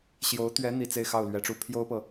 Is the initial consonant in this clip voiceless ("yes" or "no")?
yes